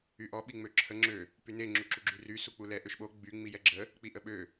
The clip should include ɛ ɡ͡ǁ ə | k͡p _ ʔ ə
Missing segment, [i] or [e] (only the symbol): i